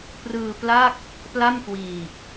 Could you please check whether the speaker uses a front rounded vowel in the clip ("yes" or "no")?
no